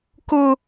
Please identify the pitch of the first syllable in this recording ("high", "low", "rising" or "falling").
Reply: high